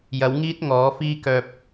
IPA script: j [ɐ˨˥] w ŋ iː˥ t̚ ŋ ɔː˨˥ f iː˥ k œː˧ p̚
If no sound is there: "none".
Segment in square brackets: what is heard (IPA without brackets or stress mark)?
ɐ˨˥